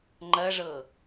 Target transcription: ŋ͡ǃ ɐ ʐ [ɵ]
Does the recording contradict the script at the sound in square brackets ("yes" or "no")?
yes